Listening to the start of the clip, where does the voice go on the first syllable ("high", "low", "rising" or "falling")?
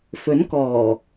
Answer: rising